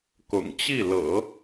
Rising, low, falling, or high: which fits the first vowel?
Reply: low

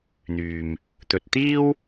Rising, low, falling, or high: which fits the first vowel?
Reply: low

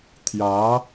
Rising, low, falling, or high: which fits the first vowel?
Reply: rising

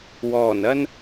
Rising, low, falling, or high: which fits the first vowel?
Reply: low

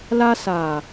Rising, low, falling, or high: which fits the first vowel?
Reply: high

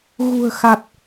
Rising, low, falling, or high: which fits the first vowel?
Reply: low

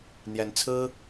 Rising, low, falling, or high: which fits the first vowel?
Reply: rising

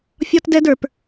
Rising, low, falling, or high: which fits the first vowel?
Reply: high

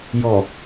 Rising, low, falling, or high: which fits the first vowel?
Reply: low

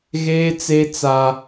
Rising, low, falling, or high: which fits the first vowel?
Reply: high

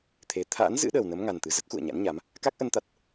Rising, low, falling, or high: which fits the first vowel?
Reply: rising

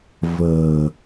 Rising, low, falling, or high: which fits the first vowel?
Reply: low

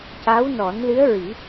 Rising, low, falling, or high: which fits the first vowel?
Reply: rising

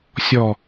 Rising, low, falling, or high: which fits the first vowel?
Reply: low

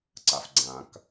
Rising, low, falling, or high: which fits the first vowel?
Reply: low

